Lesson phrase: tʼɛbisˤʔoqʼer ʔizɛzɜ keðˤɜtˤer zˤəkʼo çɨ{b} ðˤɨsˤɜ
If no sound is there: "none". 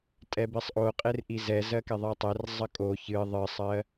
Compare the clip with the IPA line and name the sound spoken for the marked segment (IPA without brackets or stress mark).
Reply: none